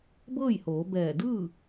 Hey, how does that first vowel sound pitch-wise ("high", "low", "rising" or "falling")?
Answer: falling